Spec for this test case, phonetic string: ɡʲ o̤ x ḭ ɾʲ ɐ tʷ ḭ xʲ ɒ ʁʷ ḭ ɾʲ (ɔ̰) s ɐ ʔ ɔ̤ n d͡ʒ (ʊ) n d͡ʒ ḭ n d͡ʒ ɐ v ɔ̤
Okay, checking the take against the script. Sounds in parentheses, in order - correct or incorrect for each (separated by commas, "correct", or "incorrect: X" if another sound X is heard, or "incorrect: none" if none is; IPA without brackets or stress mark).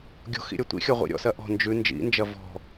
correct, incorrect: ʉ